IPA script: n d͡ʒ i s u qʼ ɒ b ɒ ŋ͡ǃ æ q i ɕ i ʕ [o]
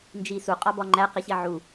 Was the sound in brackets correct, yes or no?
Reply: no